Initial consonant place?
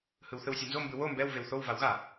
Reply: glottal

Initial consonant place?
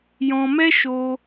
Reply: palatal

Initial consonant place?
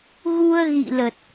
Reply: velar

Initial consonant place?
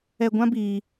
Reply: velar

